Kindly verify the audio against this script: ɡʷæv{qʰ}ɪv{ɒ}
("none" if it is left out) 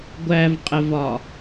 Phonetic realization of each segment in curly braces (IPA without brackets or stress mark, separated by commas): qʼ, ɒ